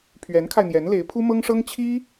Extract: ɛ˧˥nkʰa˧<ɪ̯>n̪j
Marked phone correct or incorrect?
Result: correct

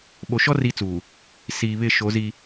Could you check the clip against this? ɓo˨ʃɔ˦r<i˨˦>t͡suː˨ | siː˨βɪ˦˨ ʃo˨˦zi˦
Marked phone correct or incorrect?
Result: correct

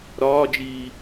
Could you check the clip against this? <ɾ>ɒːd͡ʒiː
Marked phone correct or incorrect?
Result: correct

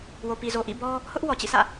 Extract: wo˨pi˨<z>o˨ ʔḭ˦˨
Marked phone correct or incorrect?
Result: correct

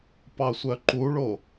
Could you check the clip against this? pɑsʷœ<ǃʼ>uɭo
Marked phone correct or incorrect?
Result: incorrect: ǃ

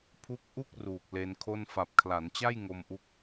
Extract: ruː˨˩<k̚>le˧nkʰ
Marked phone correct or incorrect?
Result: correct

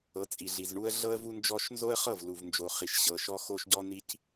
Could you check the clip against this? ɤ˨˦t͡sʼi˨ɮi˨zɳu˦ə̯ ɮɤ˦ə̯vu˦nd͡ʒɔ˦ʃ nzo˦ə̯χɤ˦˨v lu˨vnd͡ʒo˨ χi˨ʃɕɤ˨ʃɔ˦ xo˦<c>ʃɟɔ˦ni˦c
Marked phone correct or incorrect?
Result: incorrect: none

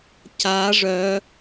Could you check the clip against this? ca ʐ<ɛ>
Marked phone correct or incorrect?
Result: incorrect: œ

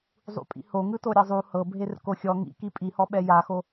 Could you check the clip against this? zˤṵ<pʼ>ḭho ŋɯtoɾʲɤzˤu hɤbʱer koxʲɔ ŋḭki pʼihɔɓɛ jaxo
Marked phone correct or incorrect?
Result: correct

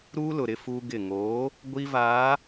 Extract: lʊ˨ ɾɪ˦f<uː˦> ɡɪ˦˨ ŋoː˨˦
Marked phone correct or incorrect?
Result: correct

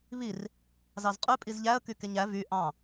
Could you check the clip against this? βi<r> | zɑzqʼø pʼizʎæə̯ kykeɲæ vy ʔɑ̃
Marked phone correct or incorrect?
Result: correct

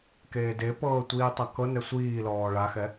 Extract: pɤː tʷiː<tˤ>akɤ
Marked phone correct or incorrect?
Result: correct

